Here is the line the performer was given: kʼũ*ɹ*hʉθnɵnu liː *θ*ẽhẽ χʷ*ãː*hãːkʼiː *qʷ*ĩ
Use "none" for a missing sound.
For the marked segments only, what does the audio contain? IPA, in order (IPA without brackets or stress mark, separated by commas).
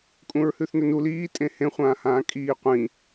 ɹ, tʼ, ãː, qʷ